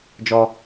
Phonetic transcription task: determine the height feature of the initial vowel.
mid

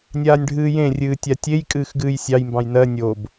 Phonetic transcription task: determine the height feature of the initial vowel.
low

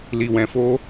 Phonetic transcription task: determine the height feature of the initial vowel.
high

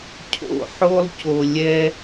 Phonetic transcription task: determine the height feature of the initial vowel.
mid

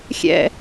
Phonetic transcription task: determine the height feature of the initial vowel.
mid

